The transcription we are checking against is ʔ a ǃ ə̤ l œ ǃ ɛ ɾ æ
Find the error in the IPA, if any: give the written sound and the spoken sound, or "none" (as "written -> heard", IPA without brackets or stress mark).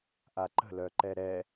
æ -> ɛ